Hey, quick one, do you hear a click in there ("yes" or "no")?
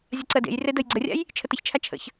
yes